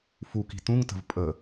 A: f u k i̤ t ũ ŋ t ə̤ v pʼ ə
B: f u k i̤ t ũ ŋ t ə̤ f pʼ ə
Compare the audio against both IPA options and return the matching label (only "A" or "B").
A